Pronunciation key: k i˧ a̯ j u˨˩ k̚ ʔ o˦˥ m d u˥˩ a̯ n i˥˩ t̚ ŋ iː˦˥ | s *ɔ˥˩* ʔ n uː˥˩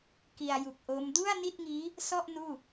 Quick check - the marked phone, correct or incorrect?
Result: correct